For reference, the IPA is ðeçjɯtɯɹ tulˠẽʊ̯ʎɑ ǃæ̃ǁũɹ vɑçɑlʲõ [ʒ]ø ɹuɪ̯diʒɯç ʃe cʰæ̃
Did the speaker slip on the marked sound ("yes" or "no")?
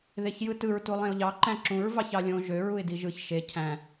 no